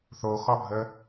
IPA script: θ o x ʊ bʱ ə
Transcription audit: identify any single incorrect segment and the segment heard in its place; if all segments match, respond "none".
ʊ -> ɔ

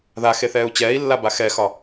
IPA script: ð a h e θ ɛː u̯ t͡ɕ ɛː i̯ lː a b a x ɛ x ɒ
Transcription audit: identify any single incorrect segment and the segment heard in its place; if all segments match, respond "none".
h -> x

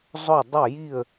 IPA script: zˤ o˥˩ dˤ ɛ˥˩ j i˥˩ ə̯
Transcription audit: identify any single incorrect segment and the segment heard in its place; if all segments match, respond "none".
none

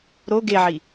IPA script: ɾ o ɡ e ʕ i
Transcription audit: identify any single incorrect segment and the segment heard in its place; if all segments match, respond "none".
none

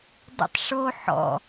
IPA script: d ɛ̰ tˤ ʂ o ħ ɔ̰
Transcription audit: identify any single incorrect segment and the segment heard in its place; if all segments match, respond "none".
none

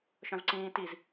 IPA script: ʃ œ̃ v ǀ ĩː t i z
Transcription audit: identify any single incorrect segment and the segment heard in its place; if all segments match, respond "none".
none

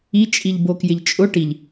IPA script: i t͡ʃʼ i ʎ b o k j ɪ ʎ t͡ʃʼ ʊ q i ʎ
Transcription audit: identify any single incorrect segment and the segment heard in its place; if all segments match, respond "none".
q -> ʈ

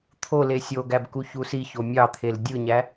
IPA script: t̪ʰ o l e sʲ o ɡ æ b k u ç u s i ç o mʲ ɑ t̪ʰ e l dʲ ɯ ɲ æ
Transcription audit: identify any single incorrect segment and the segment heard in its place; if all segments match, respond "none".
none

